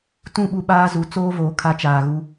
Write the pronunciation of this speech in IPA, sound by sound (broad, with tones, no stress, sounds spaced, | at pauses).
t ũ˦˨ ɓ u˦ ɓ aː˦ z u˨˦ t͡s oː˦ v oː˨ kʰ a˦ t͡ʃ aː˨ ɣ u˦